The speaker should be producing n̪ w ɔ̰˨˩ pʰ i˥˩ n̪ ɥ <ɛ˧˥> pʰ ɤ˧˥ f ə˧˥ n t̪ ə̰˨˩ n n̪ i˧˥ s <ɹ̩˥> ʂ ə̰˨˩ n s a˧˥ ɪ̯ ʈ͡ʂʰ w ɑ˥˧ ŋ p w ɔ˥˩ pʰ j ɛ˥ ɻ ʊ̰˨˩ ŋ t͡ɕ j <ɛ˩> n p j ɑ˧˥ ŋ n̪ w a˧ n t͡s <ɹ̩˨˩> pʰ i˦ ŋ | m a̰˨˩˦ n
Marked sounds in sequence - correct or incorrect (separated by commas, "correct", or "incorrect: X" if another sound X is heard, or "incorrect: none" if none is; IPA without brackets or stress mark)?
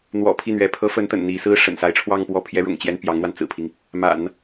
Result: correct, correct, incorrect: ɛ˥, correct